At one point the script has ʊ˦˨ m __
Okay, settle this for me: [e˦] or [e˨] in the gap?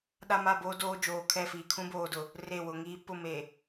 e˨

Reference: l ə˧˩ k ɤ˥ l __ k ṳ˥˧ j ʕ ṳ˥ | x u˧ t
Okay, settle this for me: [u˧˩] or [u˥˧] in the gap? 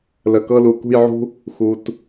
u˧˩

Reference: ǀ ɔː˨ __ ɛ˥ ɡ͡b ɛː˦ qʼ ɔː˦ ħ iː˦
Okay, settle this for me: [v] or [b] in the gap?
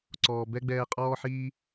b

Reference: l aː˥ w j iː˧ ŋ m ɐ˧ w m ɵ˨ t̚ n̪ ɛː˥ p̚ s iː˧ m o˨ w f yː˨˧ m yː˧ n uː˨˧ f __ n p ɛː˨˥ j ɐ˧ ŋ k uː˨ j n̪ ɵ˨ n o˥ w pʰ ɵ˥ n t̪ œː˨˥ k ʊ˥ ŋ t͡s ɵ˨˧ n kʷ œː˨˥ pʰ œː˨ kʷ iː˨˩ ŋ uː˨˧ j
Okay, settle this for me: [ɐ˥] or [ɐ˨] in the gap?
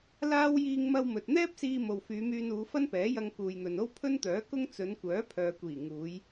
ɐ˥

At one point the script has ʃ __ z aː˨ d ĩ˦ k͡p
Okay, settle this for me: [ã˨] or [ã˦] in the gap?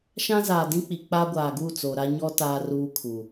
ã˦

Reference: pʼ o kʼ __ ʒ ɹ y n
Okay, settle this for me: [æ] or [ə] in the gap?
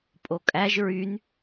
æ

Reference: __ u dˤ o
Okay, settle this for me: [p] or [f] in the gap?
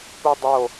p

